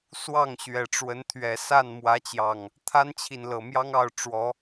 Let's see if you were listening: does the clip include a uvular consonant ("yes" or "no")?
no